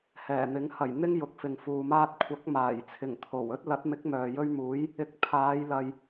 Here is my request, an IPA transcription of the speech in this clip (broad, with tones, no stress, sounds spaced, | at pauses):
h ɛː˨˩ n̪ ɪ˨˥ ŋ h ɐ˨˩ j n̪ ɪ˥ ŋ j ʊ˨˥ k̚ f ɪ˨ ŋ f uː˨ m aː˥ t̚ kʷʰ ɐ˨˥ k̚ m aː˨˩ j t͡sʰ ɪ˨˩ ŋ t̪ʰ o˨˩ w ɵ˥ t̚ l ɐ˨˥ t̚ m ɪ˨˥ k̚ m œː˨ j ɵ˥ ɥ m uː˨˥ j | ɪ˧ k̚ pʰ aː˨˧ j l ɐ˨ j